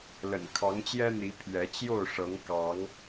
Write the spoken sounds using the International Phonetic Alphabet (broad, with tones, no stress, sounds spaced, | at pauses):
l ə̰˨˩ n kʰ ɑ˨˦ ŋ t͡ɕ j ɛ˦ n̪ i˨˦ pʰ ɥ ɛ˨˦ t͡ɕ j o˥˨ ʊ̯ ʂ ɤ˨˦ ŋ k ɑ˨˦ ŋ